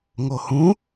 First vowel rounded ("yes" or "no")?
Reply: yes